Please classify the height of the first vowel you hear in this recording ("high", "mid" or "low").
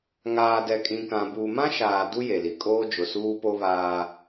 low